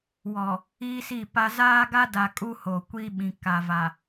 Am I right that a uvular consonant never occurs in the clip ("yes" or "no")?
yes